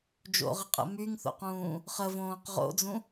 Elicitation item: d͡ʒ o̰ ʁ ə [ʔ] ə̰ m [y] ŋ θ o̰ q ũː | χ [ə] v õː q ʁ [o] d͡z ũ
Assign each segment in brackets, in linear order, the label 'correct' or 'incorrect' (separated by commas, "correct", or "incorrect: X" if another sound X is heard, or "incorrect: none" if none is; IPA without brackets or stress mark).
incorrect: qʼ, correct, correct, incorrect: o̰